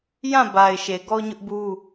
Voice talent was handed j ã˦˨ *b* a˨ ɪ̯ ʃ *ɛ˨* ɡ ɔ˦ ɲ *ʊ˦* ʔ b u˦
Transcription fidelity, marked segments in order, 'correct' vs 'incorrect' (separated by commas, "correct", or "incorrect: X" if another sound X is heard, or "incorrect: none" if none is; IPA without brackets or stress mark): correct, incorrect: e˨, correct